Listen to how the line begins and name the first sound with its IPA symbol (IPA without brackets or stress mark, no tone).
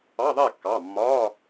ɑ